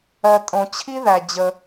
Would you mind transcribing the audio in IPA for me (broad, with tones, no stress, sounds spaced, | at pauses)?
ɜ˩ tʼ õ˩ t͡ɕʰ i˥ ð æ˩ d͡ʑ ə˩